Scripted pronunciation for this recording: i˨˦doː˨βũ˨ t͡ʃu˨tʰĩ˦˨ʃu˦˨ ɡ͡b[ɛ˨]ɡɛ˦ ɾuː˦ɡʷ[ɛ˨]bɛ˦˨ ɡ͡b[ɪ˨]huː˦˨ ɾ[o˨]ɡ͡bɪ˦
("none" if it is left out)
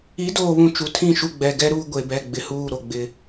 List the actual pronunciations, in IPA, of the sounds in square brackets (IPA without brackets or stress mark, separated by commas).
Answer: ɛ˨, e˨, ɪ˨, o˨